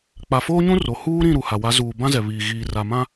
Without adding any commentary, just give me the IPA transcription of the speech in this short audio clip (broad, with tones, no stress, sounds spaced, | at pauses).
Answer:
k͡p a˨ f oː˦ ɲ ũ˦ r o˨ h uː˦ ɾ ĩ˦˨ ɾ u˨ h a˨ w a˨˦ z uː˨ b ã˦ z ɛ˨ β iː˨ ɣ iː˨ r a˨ m ã˦